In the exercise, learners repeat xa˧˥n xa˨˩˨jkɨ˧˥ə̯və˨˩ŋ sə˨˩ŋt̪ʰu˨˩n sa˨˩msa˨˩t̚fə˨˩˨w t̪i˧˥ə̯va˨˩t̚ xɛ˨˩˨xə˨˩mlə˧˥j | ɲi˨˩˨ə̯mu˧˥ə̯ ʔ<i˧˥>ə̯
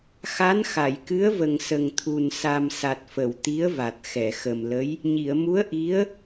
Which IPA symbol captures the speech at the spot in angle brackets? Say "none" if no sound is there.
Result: i˧˥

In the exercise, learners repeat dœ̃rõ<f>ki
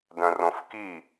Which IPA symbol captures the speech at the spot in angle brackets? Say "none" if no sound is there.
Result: f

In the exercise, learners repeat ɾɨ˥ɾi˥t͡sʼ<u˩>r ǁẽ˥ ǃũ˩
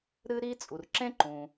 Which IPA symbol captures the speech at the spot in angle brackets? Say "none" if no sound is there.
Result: u˩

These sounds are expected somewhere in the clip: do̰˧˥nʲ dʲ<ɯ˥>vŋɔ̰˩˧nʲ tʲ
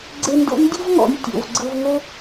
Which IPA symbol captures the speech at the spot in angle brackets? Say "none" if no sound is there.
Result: ɯ˥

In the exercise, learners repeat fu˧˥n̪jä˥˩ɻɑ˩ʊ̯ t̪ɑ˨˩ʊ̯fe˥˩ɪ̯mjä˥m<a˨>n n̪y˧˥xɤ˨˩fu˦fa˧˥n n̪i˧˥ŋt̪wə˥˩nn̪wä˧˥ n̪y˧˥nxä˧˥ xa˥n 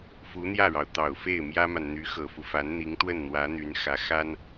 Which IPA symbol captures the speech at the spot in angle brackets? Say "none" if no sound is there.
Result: a˨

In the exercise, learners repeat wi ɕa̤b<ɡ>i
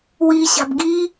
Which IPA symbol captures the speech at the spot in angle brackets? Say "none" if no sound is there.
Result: ɡ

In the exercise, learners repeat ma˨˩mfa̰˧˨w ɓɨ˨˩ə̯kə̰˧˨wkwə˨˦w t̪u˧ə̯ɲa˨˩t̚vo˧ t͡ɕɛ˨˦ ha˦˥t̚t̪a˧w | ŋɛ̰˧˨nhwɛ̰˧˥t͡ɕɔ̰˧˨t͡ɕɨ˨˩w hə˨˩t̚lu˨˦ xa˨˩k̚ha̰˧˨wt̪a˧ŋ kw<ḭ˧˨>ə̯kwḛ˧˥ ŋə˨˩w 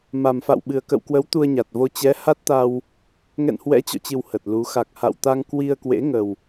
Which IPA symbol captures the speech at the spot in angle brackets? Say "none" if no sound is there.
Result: i˧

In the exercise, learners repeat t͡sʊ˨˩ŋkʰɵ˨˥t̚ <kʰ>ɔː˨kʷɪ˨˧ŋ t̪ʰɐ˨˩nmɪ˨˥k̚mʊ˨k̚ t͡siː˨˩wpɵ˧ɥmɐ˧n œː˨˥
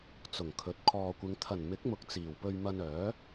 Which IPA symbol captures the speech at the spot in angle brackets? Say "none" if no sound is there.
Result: kʰ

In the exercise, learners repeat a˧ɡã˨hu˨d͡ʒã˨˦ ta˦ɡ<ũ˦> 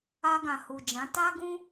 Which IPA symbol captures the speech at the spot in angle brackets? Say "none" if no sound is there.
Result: ũ˦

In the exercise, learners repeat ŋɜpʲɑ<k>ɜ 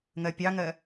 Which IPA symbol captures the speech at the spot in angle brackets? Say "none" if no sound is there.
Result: ŋ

